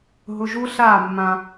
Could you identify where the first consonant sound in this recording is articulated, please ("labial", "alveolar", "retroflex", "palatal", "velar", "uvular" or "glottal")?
glottal